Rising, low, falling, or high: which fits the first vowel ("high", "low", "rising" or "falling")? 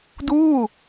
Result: falling